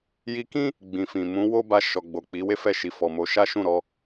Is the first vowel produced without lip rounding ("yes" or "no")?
yes